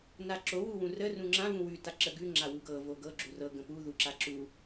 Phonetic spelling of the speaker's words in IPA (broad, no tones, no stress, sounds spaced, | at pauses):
n a ǁ o w u w ũ r ə r ũ ŋ͡ǁ ã v ũ w ʉ t a ǁ ə ɡ ʉ ŋ͡ǁ a w u ɡ ɤ v o ɡ ɤ ɡ͡ǁ u r ɤ ɡ ə̃ p u ð u ǁ a ǁ u